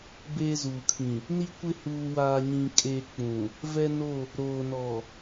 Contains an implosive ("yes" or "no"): no